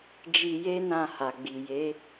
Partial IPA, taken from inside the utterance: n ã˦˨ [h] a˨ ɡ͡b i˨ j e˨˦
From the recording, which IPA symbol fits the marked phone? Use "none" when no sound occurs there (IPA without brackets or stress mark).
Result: h